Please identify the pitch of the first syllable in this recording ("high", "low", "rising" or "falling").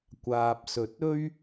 low